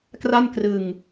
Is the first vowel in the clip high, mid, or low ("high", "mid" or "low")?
low